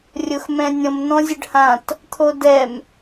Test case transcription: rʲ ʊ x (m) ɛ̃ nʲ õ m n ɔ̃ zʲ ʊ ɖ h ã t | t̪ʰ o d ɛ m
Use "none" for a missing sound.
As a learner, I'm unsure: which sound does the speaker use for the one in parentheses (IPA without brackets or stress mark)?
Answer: m